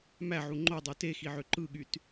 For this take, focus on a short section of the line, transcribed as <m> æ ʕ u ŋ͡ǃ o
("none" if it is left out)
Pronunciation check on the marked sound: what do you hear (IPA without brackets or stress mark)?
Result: m